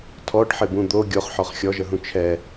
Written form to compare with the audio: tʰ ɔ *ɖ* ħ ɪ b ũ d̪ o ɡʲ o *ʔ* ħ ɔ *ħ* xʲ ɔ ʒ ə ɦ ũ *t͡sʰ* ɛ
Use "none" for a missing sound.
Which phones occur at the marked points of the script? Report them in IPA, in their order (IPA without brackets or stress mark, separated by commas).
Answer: ɖ, χ, χ, t͡ʃʰ